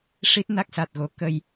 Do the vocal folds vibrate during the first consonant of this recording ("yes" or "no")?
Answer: no